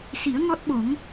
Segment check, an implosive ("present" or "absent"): present